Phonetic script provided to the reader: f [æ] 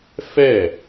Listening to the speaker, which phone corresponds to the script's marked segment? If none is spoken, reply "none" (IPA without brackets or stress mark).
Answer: ɛ